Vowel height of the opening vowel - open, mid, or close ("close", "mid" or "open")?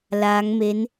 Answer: open